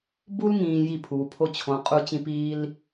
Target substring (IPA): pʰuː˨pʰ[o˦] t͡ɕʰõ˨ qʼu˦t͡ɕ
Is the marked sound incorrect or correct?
correct